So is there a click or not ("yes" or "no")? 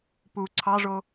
yes